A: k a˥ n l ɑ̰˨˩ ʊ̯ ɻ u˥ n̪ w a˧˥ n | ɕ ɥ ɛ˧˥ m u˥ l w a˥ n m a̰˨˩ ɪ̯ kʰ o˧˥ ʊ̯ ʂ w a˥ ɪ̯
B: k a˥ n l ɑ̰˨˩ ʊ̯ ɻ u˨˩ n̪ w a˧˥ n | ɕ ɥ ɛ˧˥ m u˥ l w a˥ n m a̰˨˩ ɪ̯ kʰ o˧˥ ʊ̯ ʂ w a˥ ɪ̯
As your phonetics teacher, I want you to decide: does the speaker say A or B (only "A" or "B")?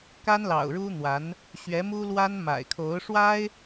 A